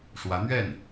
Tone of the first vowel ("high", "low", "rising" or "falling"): rising